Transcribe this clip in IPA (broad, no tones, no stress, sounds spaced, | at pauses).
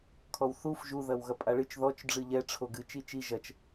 kʰ ɔ w θ u f ʒ u ð ɐ w ɣ ɐ pʼ a ɭ ɨ t͡ʃ ð ɔ t͡ʃ ɖ͡ʐ ɨ ʎ ɛ ʈ͡ʂʰ o ɡ ɨ t͡ʃ i t͡ʃ i ʒ ɐ t͡ʃ